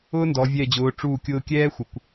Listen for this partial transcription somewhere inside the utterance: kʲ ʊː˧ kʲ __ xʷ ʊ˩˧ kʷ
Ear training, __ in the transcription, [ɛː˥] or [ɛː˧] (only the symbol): ɛː˥